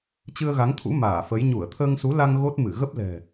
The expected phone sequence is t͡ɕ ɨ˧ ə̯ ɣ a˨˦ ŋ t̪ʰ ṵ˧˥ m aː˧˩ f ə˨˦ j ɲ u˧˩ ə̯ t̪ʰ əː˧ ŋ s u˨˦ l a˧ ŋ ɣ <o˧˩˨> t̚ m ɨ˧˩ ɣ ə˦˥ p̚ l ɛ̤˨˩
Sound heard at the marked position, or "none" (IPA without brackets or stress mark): o˦˥